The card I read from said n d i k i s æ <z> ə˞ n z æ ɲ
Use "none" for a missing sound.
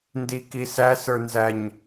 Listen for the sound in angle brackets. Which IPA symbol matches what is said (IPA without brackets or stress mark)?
s